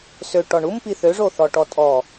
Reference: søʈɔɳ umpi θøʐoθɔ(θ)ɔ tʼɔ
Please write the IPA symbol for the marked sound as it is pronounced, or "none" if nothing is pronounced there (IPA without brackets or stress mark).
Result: ʈ